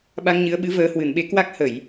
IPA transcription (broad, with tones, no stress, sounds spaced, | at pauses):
ɓ a˧ ŋ ɲ ɨ˨˦ ə̯ ɓ ɨ˨˦ v əː˨˦ h w ɨ˧˩ n ɓ e˨˦ k w a˦˥ k̚ h ə˧˩˨ j